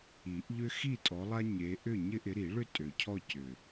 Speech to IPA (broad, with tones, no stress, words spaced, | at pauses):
i˨˩˦ʔʎʏ˦ xi˥˨tʼɔ˨˦lˠa˦ ɲe˨˦ʔʏ˥˨ ɲɪ˦ʔɪ˨˦ɾi˨˩˦ɭʏ˥˨ tʼø˨˩cʰɔ˥˨cʏ˨˩